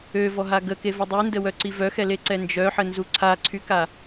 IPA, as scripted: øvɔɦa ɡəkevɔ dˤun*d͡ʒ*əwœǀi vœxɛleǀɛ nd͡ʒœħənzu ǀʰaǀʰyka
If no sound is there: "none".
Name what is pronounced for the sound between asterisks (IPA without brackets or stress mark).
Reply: d